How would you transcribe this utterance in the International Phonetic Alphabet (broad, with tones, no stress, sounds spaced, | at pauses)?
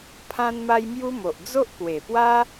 pʰ ã˦ n m a˦ j m j u˦ m o˨ ʔ d͡z o˦ ʔ k w e˨˩ p w a˦